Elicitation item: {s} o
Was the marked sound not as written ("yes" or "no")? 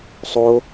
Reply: yes